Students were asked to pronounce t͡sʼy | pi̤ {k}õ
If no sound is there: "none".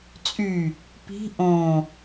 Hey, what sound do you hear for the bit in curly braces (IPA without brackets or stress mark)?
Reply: ʔ